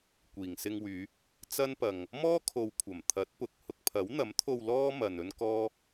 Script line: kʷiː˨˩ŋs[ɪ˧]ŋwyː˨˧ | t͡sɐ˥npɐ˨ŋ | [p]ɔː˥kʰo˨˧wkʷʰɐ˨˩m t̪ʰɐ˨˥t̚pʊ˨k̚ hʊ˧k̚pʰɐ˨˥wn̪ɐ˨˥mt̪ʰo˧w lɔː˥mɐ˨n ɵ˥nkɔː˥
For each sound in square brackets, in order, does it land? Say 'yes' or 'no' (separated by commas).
yes, no